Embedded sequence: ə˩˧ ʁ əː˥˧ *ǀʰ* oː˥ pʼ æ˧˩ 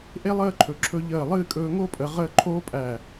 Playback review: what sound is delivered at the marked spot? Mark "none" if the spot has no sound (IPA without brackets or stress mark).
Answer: ǃʰ